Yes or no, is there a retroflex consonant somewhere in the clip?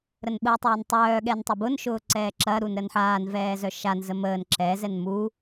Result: no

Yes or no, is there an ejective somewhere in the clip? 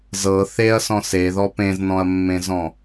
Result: no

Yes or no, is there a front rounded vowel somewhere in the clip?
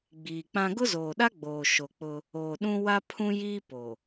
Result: no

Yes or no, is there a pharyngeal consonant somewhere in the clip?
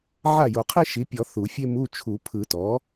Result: yes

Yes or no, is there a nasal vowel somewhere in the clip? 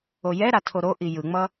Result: no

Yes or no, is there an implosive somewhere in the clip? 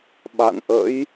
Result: yes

